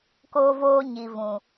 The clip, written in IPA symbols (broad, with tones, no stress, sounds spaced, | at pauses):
k oː˧ v oː˧ ɲ i˨ v ũ˨